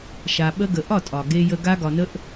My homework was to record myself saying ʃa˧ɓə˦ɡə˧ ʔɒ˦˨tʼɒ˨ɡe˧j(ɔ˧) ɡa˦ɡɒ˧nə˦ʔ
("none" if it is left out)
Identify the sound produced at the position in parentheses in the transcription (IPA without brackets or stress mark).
ə˧